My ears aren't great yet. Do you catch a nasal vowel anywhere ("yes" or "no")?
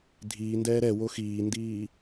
no